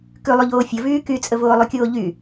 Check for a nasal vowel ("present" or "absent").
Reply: absent